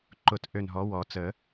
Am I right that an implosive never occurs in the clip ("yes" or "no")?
yes